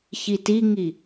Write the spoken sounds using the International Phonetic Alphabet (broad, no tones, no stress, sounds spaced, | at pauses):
ç i t i ŋ i